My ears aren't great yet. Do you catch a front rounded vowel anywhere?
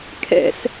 no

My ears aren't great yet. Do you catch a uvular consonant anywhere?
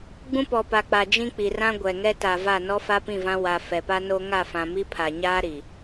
no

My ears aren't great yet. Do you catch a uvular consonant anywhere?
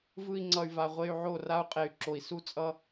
yes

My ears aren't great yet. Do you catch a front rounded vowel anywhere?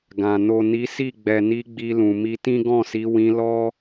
no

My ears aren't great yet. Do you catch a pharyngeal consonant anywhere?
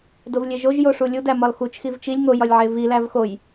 yes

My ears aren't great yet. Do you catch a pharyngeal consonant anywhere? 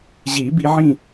yes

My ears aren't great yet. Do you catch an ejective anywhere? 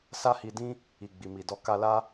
no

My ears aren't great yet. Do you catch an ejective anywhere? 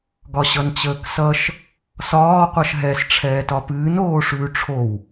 no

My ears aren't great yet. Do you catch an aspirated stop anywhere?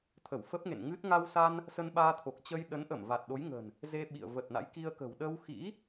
yes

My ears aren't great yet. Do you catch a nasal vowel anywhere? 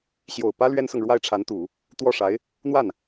no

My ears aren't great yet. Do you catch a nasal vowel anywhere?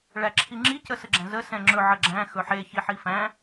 yes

